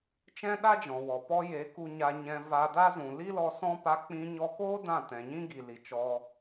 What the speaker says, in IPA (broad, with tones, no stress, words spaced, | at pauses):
t͡ʃɛ̃˦ɗa˦d͡ʒɔ̃˨wɔ˨ pɔ˧je˨˦ ku˧ɲa˧ɲɛ̃˧ va˧da˦ zũ˨li˦lɔ˧ sɔ̃˦ pa˧k͡pĩ˧ ɲɔ˧koː˦ dã˦˨tɛ̃˨ɲĩ˦ɡi˨ li˨t͡ʃɔ˧